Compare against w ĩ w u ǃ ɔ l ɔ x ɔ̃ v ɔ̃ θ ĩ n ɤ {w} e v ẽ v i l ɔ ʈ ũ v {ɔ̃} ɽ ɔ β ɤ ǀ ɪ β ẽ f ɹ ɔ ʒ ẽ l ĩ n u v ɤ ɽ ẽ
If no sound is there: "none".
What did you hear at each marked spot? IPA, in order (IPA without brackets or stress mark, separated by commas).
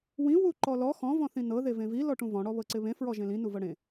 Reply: ð, ɔ̃